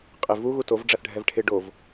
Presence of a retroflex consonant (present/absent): present